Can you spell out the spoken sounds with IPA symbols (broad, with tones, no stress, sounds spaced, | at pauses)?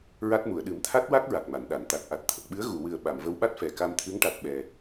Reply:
ɹ a˦˥ t̚ m u˨˩˨ ə̯ ɗ ɨ˨˩˦ m t̪ʰ a˦˥ t̚ w a˦˥ k̚ ɹ a˨˩ k̚ m a˨˩˨ n ɗ a˨˩˨ n t̪ a˨˩ t̚ ʔ a˨˩ t̚ t̪ʰ ə˨˩ k̚ ɓ ɨ˧˥ ə̯ ɣ u˨˩˨ w ɨ˨˩ ə̯ ɓ a˨˩˨ m v ə˧˥ w ɓ a˦˥ t̚ f ɛ˨˩ k a˧ m t̪ʰ ɨ˧˥ ŋ ʈ a˨˩ t̚ ɓ ɛ˨˩